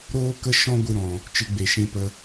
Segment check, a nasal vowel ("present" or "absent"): present